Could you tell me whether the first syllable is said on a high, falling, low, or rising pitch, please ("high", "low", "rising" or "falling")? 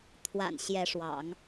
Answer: low